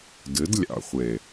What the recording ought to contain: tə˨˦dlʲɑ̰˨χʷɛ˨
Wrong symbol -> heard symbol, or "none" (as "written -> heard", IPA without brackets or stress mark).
t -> d